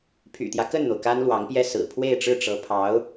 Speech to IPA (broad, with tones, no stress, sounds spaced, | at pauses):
pʰ y̰˨˩ t̪ j ä˦ k ə˥˩ n n̪ o˩ ʊ̯ k a˥ n l w ɑ˧˥ ŋ p j ɛ˥˩ s ɹ̩˨˩ pʰ w e˥˧ ɪ̯ ʈ͡ʂ ɻ̩˥˩ ʈ͡ʂ ɤ˧˥ pʰ ɑ˧˥ ʊ̯